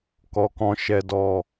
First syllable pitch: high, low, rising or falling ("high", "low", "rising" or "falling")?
low